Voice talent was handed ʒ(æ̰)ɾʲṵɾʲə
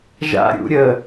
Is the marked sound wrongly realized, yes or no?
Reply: yes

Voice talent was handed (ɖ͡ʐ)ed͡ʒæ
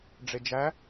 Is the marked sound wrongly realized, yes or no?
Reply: no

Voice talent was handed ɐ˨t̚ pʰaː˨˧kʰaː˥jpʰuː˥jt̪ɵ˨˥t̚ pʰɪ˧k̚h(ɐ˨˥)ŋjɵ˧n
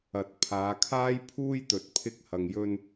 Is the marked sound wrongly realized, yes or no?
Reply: yes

